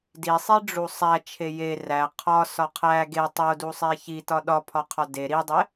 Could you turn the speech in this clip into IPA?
d i sˤ i ɖ͡ʐ u sˤ æ t͡ʃʰ e j e r æ qʰ ɒ s ɒ qʰ æ ɡ e tˤ o d u sˤ e ç i t ɒ ɗ ɒ pʰ ɒ qʰ ɒ d e ɾ i dˤ e

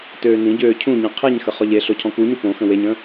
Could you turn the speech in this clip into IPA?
t øː n ĩ ɟ øː cʰ ũ ɲ ĩ qʰ i ɲ x ə χ ɔ ʎ e ɬ o cʰ ɔ̃ k u ɲ u p õ x ə̃ w e ɲ ə̃

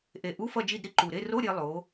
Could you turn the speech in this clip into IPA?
ʔ e˨˩ ʔ u˧˥˧ f ʌ˦˨ d͡ʒ i˦˨ d ɾ i˥ ǃ u˨˩ ɾ e˧˥˧ r o˧˥˧ ɾʲ e˩˧ lˠ o˩˧

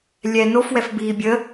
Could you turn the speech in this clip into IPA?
lʲ ɛ n o f w ɛ f b iː bʲ ə

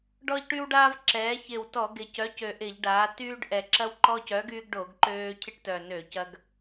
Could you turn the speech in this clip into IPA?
ɖ ɔ˦ ʎ ʈ y˦ w ɖ aː˦ v ǁ ɛː˩˧ ç ɪ˨˩ w t ɔ˧˩˧ ɡ ɪ˨˩ c œ˨˥ c ø˨˩ ʔ ɪ˧˩˧ ʎ ɖ aː˩˧ t yː˦ ɖ ʔ ɛ˨˩ ǁ ɐ˦ w ǃ ɔ˦ c œ˨˥ ɡ yː˦ ɡ ɖ o˧˩˧ ɡ ǃ øː˦ cʰ ɪ˦ ʈ t œ˨˩ n ø˧˩˧ c ɐ˦ ɡ

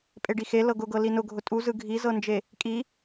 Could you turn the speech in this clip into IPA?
pʼ e ɖ i x e l ɤ ɡ ʊ ɡ ɤ l i n ʊ ɡʱ ʊ tʼ u z ɯ ɡʱ i z ɤ n d͡ʒ e | kʼ i

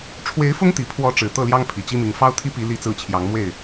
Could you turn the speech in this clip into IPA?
ʈ͡ʂʰ w e˧˥ ɪ̯ f ʊ˥ ŋ t̪ i˨˩ pʰ w ɔ˧˥ ʈ͡ʂ ɻ̩˨˩ t̪ ɤ˥˩ l j ɑ˥ ŋ pʰ i˨˩ t͡ɕ i˥ m i˧˥ ŋ f ɑ˥ ʊ̯ t̪ʰ i˥ p i˧˥ l i˥ t͡s ɹ̩˥˩ t͡ɕʰ j ɑ˧˥ ŋ m w e˥˩ ɪ̯

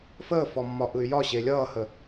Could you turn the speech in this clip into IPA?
f əː f ɔ mː ɒ ʔ ɯ y̯ j ɒ ɕ e lʲ ʌː h ə

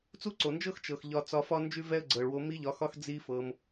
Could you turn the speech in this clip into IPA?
t͡s u˦ ǀ o˨ n d͡ʒ ɤ˦ x t͡ʃ ɤ˨ x ʎ ɒ˧ t͡s ɒ˧ f ɒ˦ n d͡ʒ ʉ˦ v ɛ˦ ə̯ ɡ͡ǀ ɤ˨ ɭ w o˧ m i˦ ʎ ɒ˧ x ɒ˦ x d͡z i˦ f ɤ˧ m

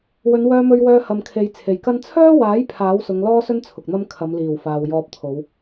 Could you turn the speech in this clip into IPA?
w ɵ˨˧ n w œː˧ m ɵ˧ ɥ w œː˧ h ɐ˨ m kʰ e˨ j t͡sʰ e˨ j k ɐ˥ n t͡sʰ œː˥ w aː˨˥ j pʰ aː˨˥ w s ʊ˨˧ ŋ l ɔː˥ s ɵ˥ n t͡sʰ ʊ˨ k̚ n̪ ɐ˥ m kʰ ɐ˨˧ m l iː˨˩ w f aː˨ w j ɔː˧ p̚ t̪ʰ o˨˧ w

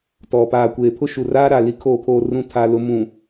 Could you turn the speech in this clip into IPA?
t ɔ˨ p aː˨ kʷ eː˨ pʰ ʊ˦ ʃ u˨ r aː˦ ɾ a˨ l i˦ kʰ oː˦ pʰ oː˦ r ũ˦ tʰ a˦ l ʊ˦ m ũ˨

